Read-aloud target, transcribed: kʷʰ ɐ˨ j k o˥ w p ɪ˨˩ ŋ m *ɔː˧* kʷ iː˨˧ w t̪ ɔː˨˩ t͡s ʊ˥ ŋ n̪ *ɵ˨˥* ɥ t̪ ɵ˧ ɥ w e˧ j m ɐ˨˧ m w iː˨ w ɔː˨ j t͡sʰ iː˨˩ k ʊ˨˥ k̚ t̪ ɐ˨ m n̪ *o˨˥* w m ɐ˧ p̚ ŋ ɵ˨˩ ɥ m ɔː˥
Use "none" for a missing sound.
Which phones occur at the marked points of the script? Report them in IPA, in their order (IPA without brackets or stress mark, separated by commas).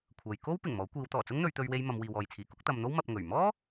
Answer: ɔː˨˥, ɵ˨˧, o˥